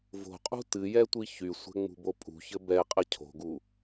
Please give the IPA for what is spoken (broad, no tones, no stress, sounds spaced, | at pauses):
v o̤ qʼ ṳ t ɨ j ɛ tʷ i ç y sʷ ɛ̤ ŋ͡m ṳ b o pʼ ṳ ç ɘ b ɛ qʼ ə cʰ o̤ ɡ u